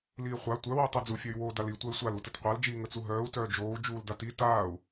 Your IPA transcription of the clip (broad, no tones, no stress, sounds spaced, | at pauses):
l iː χʷ a tʷ œ w i tˤ u d͡z u fʲ œ y̯ w oː d a l i tʷ œ y̯ sʷ a l u t ə t qʷ a l d͡ʒ iː ŋ ə t͡s u ɦ œː u̯ t œː d͡ʒ oː u̯ d͡ʒ uː l d a t i t aː u̯